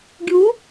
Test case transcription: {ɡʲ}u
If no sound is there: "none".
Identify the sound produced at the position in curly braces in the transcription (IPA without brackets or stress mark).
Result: ɡʲ